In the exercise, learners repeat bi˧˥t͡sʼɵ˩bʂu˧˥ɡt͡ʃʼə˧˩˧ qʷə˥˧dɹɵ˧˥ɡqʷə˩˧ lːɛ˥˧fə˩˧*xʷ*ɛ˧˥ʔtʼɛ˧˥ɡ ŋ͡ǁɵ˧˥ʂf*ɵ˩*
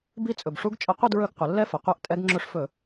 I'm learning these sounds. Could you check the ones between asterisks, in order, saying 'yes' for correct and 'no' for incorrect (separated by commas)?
no, no